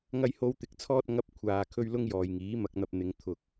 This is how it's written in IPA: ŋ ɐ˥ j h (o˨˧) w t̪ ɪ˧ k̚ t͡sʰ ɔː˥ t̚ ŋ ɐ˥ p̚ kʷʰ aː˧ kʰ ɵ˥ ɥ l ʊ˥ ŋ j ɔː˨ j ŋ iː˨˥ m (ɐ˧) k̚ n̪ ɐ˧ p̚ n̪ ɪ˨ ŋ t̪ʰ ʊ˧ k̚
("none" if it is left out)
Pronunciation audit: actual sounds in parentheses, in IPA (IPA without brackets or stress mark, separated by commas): o˥, ɐ˧